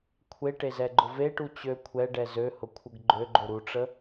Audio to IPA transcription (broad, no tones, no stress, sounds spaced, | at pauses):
kʷʰ e ʈ e z ɛ ɡ͡ǃ ʊ v e ʈ u t͡ɕ ø kʷʰ ɛ ɖ ɛ z ø h ʊ kʷʰ ə ɡ ɡ͡ǃ ø ɡ͡ǃ o ɾ u ʈ͡ʂ ə